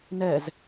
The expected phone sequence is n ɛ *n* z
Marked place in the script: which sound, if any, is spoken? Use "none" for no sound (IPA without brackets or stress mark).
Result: none